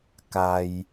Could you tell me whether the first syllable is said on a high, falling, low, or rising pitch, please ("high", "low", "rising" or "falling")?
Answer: low